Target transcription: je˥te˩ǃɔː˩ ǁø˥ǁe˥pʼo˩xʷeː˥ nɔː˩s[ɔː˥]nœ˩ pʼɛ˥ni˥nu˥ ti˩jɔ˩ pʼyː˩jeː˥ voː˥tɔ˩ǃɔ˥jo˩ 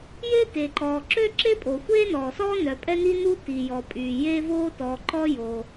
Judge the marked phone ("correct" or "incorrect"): incorrect